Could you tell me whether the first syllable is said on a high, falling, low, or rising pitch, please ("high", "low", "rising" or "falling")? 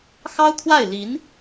high